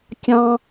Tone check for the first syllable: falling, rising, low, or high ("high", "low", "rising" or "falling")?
high